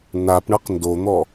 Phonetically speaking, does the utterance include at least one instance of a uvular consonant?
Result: yes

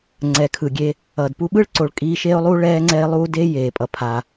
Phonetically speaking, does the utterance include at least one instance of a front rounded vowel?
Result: no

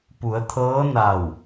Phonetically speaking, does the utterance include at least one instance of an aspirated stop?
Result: yes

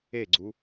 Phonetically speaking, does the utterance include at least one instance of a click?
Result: yes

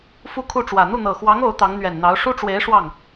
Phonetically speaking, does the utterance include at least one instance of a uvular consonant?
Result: no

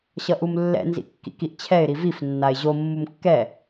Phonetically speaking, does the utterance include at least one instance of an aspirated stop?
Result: yes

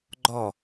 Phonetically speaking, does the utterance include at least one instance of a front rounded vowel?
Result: no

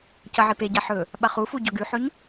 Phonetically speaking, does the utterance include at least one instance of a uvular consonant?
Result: yes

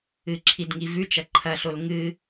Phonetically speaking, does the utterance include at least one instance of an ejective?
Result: no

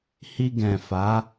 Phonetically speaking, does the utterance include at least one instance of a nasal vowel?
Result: yes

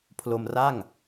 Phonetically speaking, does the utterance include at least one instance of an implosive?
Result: no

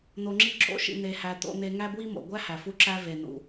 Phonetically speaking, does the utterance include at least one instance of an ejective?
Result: no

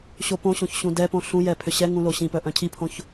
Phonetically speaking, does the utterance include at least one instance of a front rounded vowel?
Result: yes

